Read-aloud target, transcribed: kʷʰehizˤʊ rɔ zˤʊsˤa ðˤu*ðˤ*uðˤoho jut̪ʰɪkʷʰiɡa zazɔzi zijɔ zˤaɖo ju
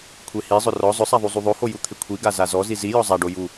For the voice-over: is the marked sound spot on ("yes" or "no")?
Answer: no